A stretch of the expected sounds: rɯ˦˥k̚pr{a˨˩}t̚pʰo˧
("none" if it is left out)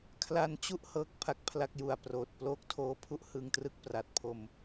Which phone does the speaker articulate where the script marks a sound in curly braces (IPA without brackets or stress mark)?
a˨˩